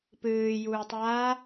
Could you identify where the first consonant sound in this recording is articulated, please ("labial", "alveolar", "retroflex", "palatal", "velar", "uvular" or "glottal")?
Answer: labial